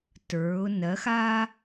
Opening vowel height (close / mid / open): mid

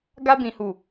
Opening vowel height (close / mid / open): open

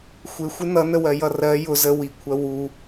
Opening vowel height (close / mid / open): close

